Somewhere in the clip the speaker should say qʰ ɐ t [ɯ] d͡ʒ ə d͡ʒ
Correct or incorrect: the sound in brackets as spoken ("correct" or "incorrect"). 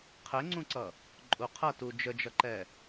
incorrect